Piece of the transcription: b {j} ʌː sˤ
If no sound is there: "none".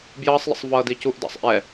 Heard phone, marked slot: j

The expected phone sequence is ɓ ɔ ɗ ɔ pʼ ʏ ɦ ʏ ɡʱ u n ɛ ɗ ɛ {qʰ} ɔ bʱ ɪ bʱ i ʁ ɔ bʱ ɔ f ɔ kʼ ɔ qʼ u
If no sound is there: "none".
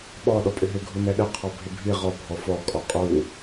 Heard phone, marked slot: qʰ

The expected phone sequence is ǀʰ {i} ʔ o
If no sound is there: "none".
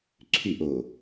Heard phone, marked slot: y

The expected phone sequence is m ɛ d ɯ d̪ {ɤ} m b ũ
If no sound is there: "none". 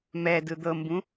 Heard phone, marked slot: ɤ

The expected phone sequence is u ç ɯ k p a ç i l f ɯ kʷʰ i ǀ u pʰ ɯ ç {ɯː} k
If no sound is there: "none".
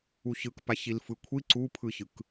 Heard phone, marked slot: ɯ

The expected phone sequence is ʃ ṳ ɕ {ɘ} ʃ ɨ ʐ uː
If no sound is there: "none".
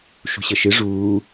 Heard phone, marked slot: ɘ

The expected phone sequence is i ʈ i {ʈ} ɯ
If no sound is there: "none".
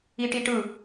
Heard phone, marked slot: ʈ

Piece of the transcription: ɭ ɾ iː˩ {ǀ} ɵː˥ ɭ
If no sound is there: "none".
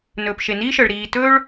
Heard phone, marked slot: t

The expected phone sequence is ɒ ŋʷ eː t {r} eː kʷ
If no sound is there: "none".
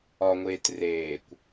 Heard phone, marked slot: r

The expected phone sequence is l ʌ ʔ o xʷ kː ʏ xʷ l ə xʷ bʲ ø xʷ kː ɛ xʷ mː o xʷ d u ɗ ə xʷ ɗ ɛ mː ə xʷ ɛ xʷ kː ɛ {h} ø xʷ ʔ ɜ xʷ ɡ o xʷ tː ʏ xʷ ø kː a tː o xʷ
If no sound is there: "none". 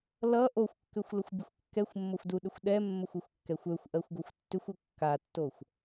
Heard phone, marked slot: xʷ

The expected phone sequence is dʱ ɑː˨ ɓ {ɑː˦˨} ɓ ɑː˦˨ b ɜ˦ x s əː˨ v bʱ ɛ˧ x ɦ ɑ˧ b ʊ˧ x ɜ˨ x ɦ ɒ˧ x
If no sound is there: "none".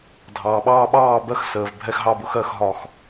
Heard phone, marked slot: ɑː˧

